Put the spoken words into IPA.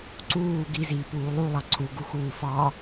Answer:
ǀ uː ɡ i z iː p uː lˠ u lˠ ɑ ǀʰ u ɡ u x uː f ɑ

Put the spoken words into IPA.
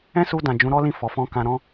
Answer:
ɛ̃˦ s u˧ d ã˨ d͡ʒ ũ˨˦ ɾ ɔ˦ l ĩ˦˨ f ɔ˨˦ f ɔ̃˦ k ã˧ ɾ ɔ̃˦

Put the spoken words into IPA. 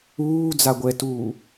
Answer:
uː d͡z a ɡʷ ɛ t uː

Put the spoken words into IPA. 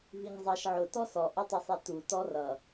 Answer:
v i ŋ zˤ ɑ ʃ ʕ ʊ t ɔ s ɔ ʔ ʊ tˤ ʊ sˤ i t u t ɔ r ʌ

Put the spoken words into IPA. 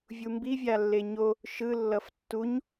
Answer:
vʲ u m b i vʲ a lː e ɲ o | ʃ ɯ lː ʌ f tː u ɲ

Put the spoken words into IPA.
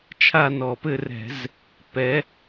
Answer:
t͡ʃʰ a˥˧ n ɔ˧˩˧ p ɘ˥˧ r ɛ̤˧˩˧ z | p ɛ˨˦

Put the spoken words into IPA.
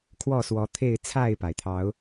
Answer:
kʰ w ɔ˥˨ s w ɔ˨˦ t̪ʰ e˥˨ ɪ̯ t͡sʰ a˥˨ ɪ̯ p a˩ ɪ̯ t̪ʰ ɑ˨˦ ʊ̯

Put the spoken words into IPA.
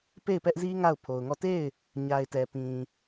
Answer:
p e˦˨ ɪ̯ p ɛ˦ ʔ z i˦ ŋ a˦˨ ʊ̯ pʰ o˨ ʊ̯ ŋ ɔ˦˨ t e˦˨ ɪ̯ | ɲ a˨ ɪ̯ t ɛ˨ p ĩ˨

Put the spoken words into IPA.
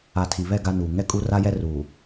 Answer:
a˨ tʰ i˨ β ɛ˦˨ ɡ a˦ n uː˨ ŋ ɛ˦ kʼ u˦ r a˦ j ɛ˦ r uː˨

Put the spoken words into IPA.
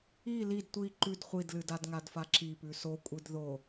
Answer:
i l i d tʷ i ǃ ʉ d χʷ i d l ɨ d a d ŋ a d f a ǁ i p ʉ s o kʷʼ ɨ d ð o

